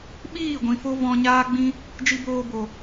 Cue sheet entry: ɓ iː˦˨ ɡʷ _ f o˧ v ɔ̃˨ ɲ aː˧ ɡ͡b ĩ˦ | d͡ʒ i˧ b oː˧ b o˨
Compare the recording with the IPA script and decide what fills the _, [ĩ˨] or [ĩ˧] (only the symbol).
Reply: ĩ˨